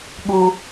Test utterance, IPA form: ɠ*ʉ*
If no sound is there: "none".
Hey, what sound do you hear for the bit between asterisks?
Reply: u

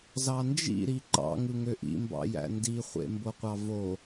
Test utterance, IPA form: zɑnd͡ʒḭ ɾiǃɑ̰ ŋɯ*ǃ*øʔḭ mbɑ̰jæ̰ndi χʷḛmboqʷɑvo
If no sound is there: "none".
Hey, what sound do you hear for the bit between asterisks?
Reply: ŋ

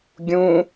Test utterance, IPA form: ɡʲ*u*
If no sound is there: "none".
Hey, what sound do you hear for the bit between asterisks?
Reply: ũ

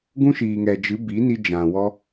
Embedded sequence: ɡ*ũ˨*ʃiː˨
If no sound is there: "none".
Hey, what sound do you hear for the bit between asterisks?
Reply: ũ˦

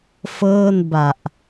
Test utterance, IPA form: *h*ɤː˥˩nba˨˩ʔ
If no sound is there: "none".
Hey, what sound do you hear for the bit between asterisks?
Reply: f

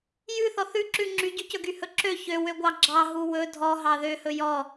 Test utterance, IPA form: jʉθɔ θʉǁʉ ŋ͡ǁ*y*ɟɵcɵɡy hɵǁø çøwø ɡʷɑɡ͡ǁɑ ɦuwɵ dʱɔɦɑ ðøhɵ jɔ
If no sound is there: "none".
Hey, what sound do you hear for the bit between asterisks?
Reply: y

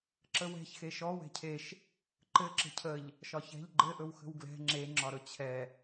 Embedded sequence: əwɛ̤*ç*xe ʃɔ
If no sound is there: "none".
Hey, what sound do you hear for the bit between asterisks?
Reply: ç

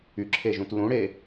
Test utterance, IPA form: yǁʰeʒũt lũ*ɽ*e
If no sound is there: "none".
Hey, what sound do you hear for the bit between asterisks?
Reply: ɽ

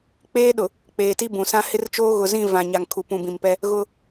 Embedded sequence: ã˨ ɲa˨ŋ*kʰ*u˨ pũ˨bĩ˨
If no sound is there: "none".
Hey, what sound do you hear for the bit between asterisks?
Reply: kʰ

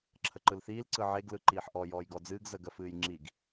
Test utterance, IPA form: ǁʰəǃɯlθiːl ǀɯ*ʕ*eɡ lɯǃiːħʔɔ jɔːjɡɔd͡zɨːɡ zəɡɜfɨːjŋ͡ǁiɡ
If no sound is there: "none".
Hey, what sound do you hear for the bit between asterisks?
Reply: ʕ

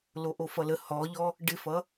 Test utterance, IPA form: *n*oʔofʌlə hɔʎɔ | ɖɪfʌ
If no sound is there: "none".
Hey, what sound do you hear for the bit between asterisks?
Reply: l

